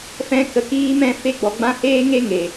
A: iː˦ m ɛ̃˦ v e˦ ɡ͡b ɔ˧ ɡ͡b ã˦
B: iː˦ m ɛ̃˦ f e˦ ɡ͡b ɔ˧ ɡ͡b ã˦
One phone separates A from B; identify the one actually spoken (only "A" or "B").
B